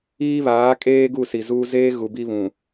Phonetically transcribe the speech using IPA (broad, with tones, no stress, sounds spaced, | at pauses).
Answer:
iː˦ β aː˨˦ kʼ eː˦ ɡ u˦˨ s i˨ z uː˦ z eː˦ ɣ u˨ b i˦ β ũ˨